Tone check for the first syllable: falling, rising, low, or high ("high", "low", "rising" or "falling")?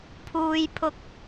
low